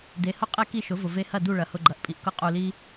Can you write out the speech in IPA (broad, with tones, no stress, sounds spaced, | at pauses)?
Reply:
d e˩˥ h ʊ˥ qʼ e˥ k i˥˩ ʃ ʊ˩˥ v ʊ˩ v e˧ h ɐ˥˩ d u˥˩ ɭ ɐ˩˥ h ʊ˧ ɡ͡ǃ ɐ˩˥ ʔ pʼ i˩ ʔ k ʊ˥˩ qʼ u˧ l i˥